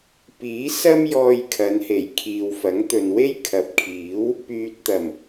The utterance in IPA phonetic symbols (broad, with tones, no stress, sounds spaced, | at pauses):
p iː˨˥ s ɐ˥ m j ɔː˧ j kʰ ɐ˨˧ n h e˨˩ j kʰ iː˨ w f ɐ˨˥ ŋ t̪ ɵ˨ n w e˥ j kʰ ɐ˨˥ p̚ kʰ iː˨˥ w | p yː˨ t̚ t̪ ɐ˨˩ m